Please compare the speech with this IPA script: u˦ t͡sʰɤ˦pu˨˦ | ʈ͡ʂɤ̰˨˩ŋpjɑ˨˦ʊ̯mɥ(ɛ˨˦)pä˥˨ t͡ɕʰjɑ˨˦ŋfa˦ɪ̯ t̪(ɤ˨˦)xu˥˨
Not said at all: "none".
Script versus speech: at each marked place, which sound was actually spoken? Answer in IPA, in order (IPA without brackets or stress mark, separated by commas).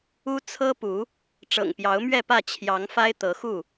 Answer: ɛ˥˨, ɤ˨˦